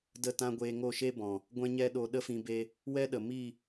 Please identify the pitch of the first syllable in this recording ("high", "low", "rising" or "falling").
falling